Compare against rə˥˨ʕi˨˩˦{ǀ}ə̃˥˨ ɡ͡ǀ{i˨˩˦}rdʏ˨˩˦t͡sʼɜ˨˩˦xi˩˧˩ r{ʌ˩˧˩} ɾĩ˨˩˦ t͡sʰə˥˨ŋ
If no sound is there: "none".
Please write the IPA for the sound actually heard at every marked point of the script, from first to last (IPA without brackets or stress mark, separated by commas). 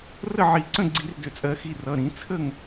ǀ, i˨˩˦, ʌ˩˧˩